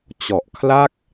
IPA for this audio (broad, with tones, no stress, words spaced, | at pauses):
t͡ɕɔ˨˩ʔkʰla˥˩k̚